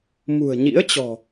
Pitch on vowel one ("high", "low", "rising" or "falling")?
low